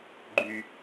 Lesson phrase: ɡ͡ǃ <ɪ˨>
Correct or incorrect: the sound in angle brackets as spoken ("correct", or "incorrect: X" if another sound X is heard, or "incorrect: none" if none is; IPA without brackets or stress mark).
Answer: incorrect: y˨